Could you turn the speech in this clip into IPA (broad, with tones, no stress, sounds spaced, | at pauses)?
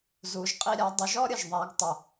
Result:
z u˩˧ ʒ qʼ i˧ ɾʲ a˩˧ dˤ ə˩˧ ʒ ɔ˥ ɾʲ ə˩ ʒ ðˤ a˩˧ ɡ tˤ ə˩